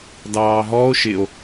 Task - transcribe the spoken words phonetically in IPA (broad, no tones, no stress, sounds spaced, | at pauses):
d ɑː ɦ ɔ o̯ ʃ ɪ o̯